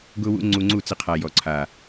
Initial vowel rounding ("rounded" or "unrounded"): rounded